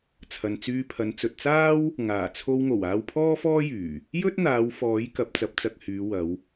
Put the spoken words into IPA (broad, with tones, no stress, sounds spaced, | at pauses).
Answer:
t͡sʰ ɐ˨ n t͡s yː˧ pʰ ɐ˨˧ n t͡s ɵ˨ t̚ t͡s aː˥ w | ŋ aː˨˩ t͡sʰ o˧ w ŋ o˨˩ w aː˧ w pʰ ɔː˥ f ɔː˥ j yː˨˩ | j ɵ˥ t̚ n̪ aː˨˧ w f ɔː˨˥ j k ɐ˨˥ p̚ t͡s ɐ˨˥ p̚ t͡s ɐ˧ k̚ h yː˨˧ w ɐ˨˧ w